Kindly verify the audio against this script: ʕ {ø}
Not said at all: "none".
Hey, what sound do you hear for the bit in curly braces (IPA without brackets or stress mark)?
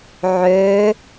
ø